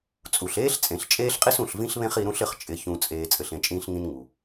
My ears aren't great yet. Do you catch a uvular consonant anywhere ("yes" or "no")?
yes